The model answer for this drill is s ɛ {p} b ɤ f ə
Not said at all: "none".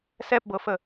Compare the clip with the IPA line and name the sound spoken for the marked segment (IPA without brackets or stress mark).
p